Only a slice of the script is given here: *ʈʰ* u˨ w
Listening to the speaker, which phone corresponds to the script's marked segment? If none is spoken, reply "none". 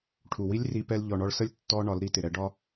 ʈʰ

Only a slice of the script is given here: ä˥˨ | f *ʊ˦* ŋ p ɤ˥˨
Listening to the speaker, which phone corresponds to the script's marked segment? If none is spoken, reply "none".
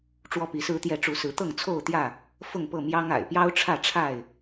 ʊ˥˨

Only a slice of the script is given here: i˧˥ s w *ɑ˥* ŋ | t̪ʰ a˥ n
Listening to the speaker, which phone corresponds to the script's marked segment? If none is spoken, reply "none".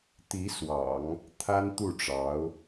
ɑ̰˨˩˦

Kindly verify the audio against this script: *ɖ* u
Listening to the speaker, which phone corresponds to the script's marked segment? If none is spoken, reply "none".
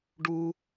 ɖ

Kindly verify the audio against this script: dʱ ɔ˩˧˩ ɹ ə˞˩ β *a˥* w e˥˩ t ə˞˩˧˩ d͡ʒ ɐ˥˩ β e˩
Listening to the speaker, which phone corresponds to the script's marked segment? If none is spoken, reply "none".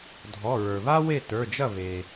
a˥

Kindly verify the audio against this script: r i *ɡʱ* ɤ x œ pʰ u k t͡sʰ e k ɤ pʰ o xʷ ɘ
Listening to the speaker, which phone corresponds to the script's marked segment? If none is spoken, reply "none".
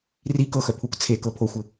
k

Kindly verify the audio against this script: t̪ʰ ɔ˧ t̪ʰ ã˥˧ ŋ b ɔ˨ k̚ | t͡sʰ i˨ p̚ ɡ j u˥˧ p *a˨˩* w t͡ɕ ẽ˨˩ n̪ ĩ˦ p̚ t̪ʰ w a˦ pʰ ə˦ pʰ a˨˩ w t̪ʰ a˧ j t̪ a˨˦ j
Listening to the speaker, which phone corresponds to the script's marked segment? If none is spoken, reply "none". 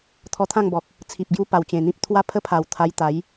a˨˩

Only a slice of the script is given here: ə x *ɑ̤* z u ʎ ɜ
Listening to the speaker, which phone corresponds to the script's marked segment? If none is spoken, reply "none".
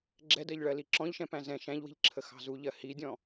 ɑ̤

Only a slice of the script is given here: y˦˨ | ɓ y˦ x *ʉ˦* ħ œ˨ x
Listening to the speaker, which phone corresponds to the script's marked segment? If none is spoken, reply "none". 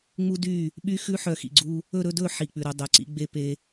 ʉ˦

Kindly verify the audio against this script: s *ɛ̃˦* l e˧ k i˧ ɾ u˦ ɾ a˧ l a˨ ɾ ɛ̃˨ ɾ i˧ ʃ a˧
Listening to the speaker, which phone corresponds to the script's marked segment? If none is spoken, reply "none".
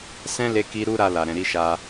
ɛ̃˦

